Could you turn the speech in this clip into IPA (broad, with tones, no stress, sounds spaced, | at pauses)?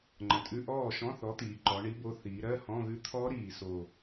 ŋ͡ǃ ə̃˩˧ tʼ ʉ˧˥˧ ʔ ɔː˥˩ ʃ ɔ̃˧˥˧ θ ɔ˨˥ t̪ iː˩˧ ǃ ɔ˩˧ ɳ i˨˥ b o˨˥ θ iː˩˧ ɾ ɜ˧˥˧ h ɔ̃˧˥˧ ɣ ʉ˦˥ t̪ʰ ɔː˦˥ ɾ iː˨˩ s o˨˩